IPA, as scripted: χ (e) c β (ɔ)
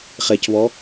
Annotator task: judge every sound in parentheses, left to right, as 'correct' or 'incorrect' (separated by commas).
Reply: correct, correct